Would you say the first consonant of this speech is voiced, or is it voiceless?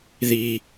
voiced